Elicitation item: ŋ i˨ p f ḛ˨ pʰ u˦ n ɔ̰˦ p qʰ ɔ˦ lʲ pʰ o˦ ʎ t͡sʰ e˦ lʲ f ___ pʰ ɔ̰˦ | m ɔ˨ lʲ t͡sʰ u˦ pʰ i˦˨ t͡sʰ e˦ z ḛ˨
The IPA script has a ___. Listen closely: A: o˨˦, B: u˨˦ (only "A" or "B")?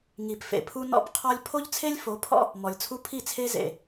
A